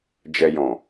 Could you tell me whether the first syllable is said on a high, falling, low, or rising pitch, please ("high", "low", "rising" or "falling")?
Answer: low